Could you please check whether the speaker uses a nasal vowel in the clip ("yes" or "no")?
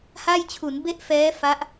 no